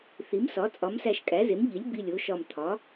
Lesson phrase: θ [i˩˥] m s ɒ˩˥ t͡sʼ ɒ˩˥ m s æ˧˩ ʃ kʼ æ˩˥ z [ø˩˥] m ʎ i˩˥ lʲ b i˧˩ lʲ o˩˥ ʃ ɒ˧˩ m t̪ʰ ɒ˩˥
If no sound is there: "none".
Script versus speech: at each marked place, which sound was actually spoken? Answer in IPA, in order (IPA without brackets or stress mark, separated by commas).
i˩˥, e˩˥